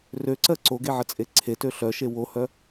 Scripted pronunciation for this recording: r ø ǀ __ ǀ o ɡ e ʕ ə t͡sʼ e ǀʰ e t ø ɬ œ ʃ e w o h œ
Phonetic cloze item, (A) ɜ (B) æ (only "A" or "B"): A